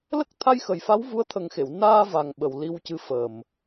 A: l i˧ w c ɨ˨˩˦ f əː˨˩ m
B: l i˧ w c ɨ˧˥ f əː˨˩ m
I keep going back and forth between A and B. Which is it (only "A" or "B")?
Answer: B